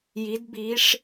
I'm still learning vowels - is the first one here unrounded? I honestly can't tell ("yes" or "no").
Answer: yes